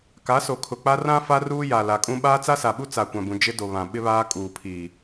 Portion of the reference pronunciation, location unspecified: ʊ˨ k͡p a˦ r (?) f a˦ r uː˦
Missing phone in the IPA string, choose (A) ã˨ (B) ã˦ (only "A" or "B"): B